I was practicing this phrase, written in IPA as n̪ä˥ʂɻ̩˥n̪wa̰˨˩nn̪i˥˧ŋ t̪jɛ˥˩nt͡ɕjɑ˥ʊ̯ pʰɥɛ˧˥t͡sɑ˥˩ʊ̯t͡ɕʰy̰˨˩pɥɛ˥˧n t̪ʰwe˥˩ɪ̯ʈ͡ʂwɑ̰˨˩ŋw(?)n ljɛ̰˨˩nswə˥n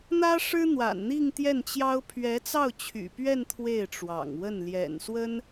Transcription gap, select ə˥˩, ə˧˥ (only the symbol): ə˥˩